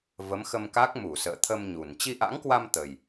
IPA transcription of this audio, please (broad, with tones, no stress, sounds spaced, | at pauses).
v ə˨˦ m x ə˧ m k a˦˥ k̚ m u˧˩ s ə̰ː˧˨ t̪ʰ ə˧ m ɲ u˨˩ n t͡ɕ i˧ ʔ a̰˧˥ ŋ k w a˧ m t̪ ə˨˩ j